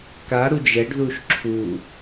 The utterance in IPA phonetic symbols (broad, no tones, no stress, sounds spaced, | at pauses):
k a ɾ u d͡ʒ ɛ ɖ ð u ʃ ǁʰ u